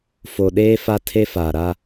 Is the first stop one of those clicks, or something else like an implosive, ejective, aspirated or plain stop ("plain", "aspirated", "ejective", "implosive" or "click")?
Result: implosive